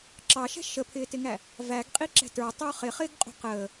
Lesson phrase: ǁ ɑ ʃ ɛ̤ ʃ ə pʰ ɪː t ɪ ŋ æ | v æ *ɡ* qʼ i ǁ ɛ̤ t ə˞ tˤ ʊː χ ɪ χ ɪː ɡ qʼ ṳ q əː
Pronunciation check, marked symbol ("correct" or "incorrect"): correct